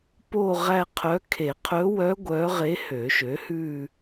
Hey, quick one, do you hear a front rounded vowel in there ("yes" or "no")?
yes